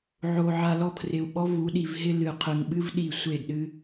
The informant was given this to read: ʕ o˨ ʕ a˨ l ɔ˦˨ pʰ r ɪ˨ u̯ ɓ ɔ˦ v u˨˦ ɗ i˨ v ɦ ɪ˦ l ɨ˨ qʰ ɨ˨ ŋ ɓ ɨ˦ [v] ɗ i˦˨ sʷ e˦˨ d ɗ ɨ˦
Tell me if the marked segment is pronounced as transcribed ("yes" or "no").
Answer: yes